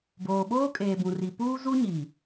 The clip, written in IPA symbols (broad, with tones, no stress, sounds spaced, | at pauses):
b oː˨ ɓ oː˦ kʼ eː˨ b ũ˨ r i˨ p uː˦ z u˦ ɲ i˨